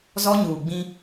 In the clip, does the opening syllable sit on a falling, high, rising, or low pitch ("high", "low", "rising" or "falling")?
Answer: high